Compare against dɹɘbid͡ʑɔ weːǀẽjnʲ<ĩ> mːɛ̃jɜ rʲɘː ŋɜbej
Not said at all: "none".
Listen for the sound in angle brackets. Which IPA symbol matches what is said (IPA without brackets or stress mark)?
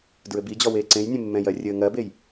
ẽ